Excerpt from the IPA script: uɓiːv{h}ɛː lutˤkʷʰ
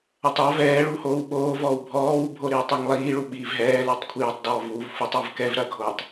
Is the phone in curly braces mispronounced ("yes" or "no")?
yes